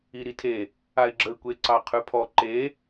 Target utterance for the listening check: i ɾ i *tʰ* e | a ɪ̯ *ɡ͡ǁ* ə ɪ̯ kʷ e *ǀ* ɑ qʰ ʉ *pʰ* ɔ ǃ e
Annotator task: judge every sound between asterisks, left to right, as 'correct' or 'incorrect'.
correct, correct, correct, correct

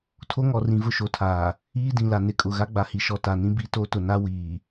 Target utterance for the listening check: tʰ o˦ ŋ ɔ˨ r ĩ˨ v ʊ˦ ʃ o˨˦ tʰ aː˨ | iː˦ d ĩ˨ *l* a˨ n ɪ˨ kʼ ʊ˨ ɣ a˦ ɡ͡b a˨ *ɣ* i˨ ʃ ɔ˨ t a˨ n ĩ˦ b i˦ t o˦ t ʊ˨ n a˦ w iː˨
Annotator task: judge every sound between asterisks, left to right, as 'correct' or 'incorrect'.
correct, incorrect: h

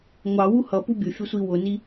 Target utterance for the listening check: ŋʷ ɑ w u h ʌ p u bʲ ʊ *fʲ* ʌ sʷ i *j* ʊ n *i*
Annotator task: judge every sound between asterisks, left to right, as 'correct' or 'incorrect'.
correct, incorrect: w, correct

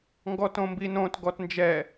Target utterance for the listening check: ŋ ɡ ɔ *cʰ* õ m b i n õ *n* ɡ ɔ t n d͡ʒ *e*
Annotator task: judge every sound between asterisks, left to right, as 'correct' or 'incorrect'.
incorrect: t, incorrect: t, incorrect: ɛ

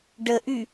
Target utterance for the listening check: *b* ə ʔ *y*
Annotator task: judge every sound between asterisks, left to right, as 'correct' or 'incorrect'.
incorrect: ɖ, correct

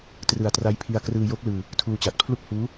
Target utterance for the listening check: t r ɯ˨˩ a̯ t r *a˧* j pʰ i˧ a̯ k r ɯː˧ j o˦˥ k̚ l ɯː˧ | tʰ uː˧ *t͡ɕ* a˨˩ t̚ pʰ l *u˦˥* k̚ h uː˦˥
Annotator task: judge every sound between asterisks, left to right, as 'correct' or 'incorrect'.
incorrect: a˦˥, correct, incorrect: u˥˩

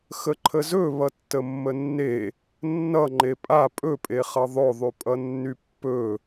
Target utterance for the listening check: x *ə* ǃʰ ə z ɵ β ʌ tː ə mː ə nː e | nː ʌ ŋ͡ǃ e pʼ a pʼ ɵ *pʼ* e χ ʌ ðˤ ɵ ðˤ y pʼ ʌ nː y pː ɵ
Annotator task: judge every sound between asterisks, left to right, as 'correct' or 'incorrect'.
correct, correct

